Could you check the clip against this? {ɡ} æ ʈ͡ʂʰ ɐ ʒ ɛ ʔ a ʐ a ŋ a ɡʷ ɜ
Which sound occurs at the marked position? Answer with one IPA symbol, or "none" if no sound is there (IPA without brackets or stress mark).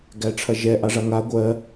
ɡ